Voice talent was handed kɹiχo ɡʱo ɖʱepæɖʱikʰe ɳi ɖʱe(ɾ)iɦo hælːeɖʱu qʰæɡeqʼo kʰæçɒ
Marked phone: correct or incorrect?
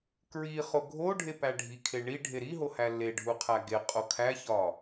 correct